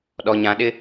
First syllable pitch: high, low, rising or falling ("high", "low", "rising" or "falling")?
low